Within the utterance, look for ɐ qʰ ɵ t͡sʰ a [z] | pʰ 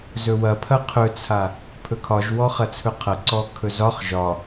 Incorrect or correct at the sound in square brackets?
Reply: incorrect: none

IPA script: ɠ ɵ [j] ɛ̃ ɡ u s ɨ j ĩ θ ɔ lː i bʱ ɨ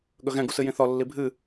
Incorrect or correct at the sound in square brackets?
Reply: incorrect: ɣ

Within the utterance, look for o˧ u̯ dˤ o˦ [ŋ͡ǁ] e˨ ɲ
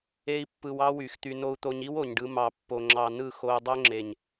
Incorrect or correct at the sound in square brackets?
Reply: correct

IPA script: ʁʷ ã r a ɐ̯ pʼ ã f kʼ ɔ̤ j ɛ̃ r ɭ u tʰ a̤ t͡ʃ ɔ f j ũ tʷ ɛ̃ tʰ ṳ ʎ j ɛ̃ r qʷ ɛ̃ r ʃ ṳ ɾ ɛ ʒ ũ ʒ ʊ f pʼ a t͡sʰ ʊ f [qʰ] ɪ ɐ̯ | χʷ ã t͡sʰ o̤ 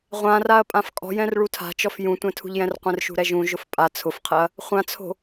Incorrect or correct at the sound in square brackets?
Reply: correct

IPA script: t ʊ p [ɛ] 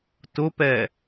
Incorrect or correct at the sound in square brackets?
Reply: correct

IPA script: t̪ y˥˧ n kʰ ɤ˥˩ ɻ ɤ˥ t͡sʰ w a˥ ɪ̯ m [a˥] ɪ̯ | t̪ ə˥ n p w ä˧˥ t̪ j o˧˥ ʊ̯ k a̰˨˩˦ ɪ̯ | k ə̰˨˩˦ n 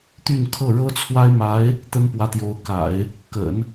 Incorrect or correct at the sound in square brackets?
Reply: incorrect: a˧˥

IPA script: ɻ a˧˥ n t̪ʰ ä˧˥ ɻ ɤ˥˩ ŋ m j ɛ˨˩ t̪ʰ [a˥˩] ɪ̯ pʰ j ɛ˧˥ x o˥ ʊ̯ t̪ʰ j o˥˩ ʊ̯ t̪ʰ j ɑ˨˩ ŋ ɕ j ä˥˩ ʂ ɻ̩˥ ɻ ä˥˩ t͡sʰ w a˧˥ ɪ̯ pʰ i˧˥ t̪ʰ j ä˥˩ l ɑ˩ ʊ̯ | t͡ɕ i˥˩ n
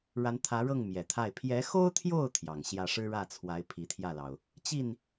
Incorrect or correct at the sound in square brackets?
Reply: correct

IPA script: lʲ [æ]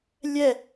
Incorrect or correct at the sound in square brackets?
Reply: incorrect: ɛ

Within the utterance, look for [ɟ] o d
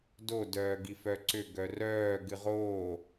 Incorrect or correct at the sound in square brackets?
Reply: incorrect: d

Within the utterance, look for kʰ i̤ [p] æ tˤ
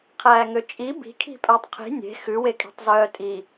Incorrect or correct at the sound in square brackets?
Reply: incorrect: pʼ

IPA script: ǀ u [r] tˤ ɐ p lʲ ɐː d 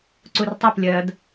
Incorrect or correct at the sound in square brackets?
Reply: correct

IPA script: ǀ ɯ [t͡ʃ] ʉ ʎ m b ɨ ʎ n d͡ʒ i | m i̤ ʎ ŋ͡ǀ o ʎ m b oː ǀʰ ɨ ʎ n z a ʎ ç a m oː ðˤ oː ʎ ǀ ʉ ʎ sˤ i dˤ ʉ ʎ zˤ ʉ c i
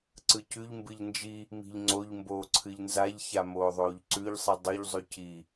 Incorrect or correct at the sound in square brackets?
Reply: incorrect: c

